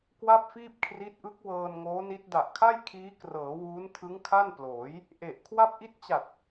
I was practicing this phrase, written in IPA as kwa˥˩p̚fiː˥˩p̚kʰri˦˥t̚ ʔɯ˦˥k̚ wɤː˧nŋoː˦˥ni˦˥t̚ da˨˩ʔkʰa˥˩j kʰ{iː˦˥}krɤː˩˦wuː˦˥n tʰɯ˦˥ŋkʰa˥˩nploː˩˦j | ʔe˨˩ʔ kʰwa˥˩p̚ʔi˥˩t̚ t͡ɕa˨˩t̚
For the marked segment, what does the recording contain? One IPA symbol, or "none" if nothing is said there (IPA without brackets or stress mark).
iː˦˥